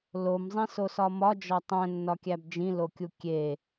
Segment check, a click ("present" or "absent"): absent